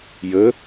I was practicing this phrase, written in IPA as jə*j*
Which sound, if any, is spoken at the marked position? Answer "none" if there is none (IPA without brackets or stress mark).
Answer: none